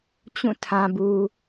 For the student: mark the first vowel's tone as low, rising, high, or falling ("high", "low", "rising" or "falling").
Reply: falling